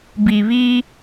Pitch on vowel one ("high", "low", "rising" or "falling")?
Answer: low